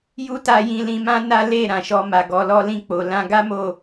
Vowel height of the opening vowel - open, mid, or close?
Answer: close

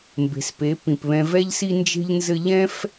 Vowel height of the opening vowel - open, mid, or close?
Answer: mid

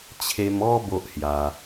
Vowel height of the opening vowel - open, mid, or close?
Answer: mid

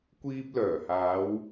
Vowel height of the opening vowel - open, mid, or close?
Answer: close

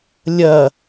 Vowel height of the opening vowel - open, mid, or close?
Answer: open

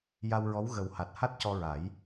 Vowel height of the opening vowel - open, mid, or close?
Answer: open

